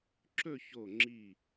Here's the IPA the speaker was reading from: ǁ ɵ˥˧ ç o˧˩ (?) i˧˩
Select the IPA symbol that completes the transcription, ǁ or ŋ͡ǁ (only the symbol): ŋ͡ǁ